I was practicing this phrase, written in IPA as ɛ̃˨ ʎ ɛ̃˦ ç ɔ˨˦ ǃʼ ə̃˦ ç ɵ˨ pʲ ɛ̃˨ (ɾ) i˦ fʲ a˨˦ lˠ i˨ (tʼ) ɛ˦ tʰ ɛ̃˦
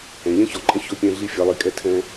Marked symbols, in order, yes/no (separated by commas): no, no